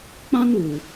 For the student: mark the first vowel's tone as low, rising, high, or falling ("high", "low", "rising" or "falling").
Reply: high